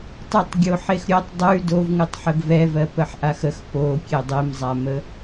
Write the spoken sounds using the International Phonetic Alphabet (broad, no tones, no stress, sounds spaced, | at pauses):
tˤ ʉ tˤ ɡʲ o ħ e x ɾʲ o tˤ dˤ ʉ d o v ŋ ʉ tˤ ħ ə ɡ v ɛ v ɜ p ə ħ ʔ a x ə x p o kʲ e dˤ e m zˤ a m ə